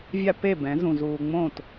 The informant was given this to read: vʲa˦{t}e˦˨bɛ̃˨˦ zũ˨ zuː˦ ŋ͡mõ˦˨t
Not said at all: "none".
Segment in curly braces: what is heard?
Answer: p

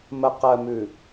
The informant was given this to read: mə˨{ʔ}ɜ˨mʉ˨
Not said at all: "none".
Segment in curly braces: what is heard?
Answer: q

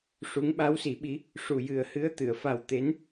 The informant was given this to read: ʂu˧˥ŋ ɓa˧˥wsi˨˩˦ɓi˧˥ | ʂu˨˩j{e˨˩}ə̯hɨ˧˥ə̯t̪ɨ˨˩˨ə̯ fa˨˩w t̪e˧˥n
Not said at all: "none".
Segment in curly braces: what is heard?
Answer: ɨ˨˩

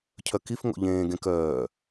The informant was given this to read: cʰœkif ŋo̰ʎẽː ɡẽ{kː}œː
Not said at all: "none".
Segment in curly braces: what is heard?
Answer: k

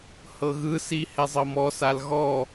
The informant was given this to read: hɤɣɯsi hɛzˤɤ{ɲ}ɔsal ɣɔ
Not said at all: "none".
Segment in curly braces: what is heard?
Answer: m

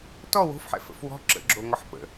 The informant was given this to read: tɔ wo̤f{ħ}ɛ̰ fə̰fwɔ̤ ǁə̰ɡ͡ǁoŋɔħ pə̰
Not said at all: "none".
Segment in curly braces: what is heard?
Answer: ħ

